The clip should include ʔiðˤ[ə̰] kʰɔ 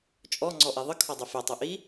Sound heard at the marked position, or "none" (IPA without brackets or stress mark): ə